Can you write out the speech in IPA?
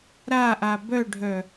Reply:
ɾ a ʔ a b œ ɖʱ œ

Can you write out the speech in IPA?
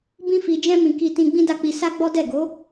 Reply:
b ĩ˦ f i˧ d͡ʒ ɛ̃˦ m ĩ˧ k i˧ t ĩ˧ ɡ͡b ĩ˦ d a˦˨ k͡p i˧ s a˦ ɡ͡b ɔ˦ d ɛ˦˨ ɡ o˨˦

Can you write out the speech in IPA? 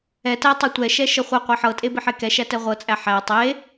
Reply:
ɛ t æ tˤ ɤ tʷ ɛ ʃ ɛ ʃ ɤ χʷ ɛ qʷ æ ħ ɤ tʼ e b i ħ e k ɛ ʃ æ t ɛ ʁʷ ɤ t͡sʼ æ ħ æ tˤ e

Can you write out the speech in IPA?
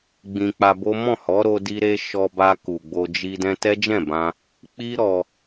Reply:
ɡ͡b ĩ˧ k͡p a˧ b o˦ m ɔ̃˦˨ h ɔ˨˦ ɾ o˧ d i˧ ɾ e˧ ʃ ɔ˧ b a˧ k u˨ ɡ͡b o˧ d͡ʒ i˧ d ɛ̃˧ t ɛ˦ d͡ʒ ɛ̃˦˨ b ã˧ | k͡p i˦ ɾ ɔ˧

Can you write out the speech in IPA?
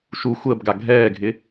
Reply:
ʃ u xʷ əː b ɡ a ɡʱ ɛː ɡʱ ɪ

